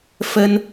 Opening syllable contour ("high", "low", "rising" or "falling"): high